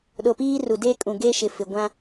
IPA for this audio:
ɗ o˨ p iː˦ r u˨ d eː˦ kʼ ũ˨ ɡ e˦ ʃ ɪ˨ f ɪ˨ ɡʷ ã˦

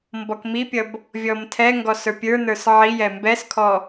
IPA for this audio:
m b ɔ k m i pʲ ʌ b | vʲ ɔ m tʰ ɛ ŋ ɡ ɔ s ə˞ pʲ ə˞ n ə˞ s ʕ i j ɛ m b ɛ s kʰ ɔ

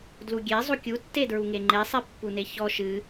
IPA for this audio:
d l u ɡʲ e zˤ u kʲ u tː e d ɹ u ŋ e ŋ͡ǃ e sˤ e pː u n e ç ɔ ʃ ɨ

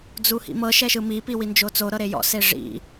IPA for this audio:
d͡z u h ḭ m ɤ ʃ ɛ ʃ ɯ m i p i w i n d͡ʒ o t͡s o ɾ ɤ ɾ e j ɔ̰ s e ʐ ḭ

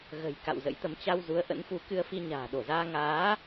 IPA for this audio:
ɣ ə̤˨˩ j k a̰˧˨ w z ə̰˧˥ j t̪ ə˨˦ m t͡ɕ a˧ w z u˨˦ ə̯ ʔ ə̰˧˥ n f u˨˦ k ɨ˧ ə̯ f i˧ ɲ a̤ː˨˩ ɗ o˧˩ z aː˧ ŋ aː˨˦

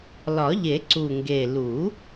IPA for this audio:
l ɒ˨˩˦ ʎ e˨˩˦ ǀ u˨˩ ŋ ɡ e˨˩ l u˨˩˦

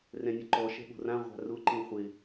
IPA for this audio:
r ɛ̃ nʲ ʊ ǃ ɔ ʃ ɛ̤ ɠ o̤ r ã ʁʷ a̤ r ʊ ǃ ĩ χʷ ɪ

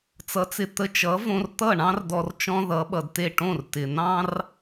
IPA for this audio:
t͡s ʌ˩˥ t͡s ɪ˩ t̪ ə˧ t͡ʃ ʌ˩˥ v õ˧ r t̪ ʌ˥˩ ɳ ɑ̃˥ r d ɔ˧ r t͡ʃ ɔ̃˥ ð ʌ˩˥ ɓ ʌ˩ d t e˥˩ ʈ õ˥˩ r t ɪ˩ n̪ ɑ̃˥ r

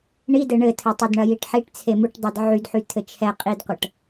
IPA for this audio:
ɳ i d ɘ ɳ ɘ tʰ ɘ tˤ ɘ d ɳ ɐ j i ʈ ħ i ʈ t͡sʰ e m u ʈ dˤ ɛ d ʕ y d ħ y tʰ ɘ t͡ʃʰ ɛ qʼ i d qʷ ɐ ʈ

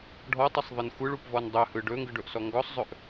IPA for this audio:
ɖʱ ɔ tˤ i sˤ ðˤ ɯ n xʷ ɯ ɭ u p v ɔ n dˤ ɵ h ɯ ɖ ɵ ŋ ɡ ɯ ɖ ɵ ʔ s ɔ ŋ ɡ ɔ sˤ zˤ ɵ ʔ

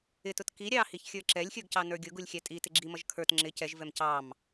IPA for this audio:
ɪ t ʊ t k i ɾʲ ɑ h i ç xʲ ə˞ ǁ ɛ lʲ xʲ ə˞ ɡ c ɑ n ə˞ ɡʲ ʊ ɡ u lʲ xʲ æ tʼ i t ɪ ɡ͡ǁ i m ʌ ʒ kʰ ə˞ t ŋ͡ǁ ɪ c ɛ ʒ v ɛ m c ɑ m

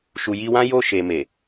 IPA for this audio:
ʃ u˨ j i˧ w ã˦ j o˦˨ ʃ e˨ m e˨

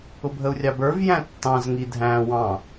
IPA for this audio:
ʊ bʱ ə u̯ rʲ ɑ b ə˞ v j æ̃ tː ɑ̃ z ŋ i dʱ æ̃ w ɑ̃

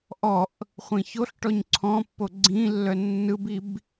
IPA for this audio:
ʔ ɔ ʔ | χʷ ĩ ç o ɬ ʈ ɔ ɲ ǀʰ ɔ̃ pː o ɡ͡ǀ ĩ lː œ nː ɯ b i b

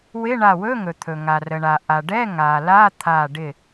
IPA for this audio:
w ɪ˧˥˧ ɳ a˧˩ w ɵ˧˥˧ ŋ ɵ˩ t̪ʰ ɵ˩ ŋ a˩ r ə˩ ɳ a˩ ʔ a˩ ɖ ɛ˧˥˧ ŋ a˩ l a˧˥˧ t̪ʰ a˧˩ ɖ ɪ˧˩

